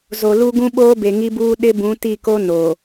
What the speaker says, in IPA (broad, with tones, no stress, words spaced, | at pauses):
zo˨ lu˦ɡũ˦ ɓoː˦be˨ŋi˦buː˦ ɗɪ˦bũ˨˦ti˦˨ko˦ no˨